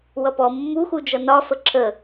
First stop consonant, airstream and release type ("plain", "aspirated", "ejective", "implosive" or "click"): plain